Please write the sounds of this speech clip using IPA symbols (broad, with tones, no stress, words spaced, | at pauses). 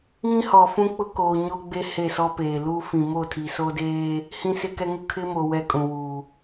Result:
ŋĩ˦hɔ˨fũ˦k͡pʊ˦ koː˨ ɲo˦ɡ͡be˦ he˦˨sɔ˦peː˨ lu˦ fĩ˨ mo˦˨tʰi˨so˦deː˦ | hĩ˦sɪ˦kɛ˦ŋʊ˦ kʰɪ˦mo˨ wɛ˦kʼũ˨ wu˨